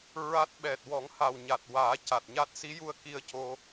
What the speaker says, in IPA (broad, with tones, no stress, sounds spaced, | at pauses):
ɹ a˦˥ t̚ ɓ ɛ˨˩ t̚ w ɔ˨˩˦ ŋ h a˨˩ w ɲ a˨˩ t̚ w aː˨˩˦ c a˨˩ t̚ ɲ a˦˥ t̚ s i˧˥ j u˧ ə̯ k i˧ ə̯ c o˧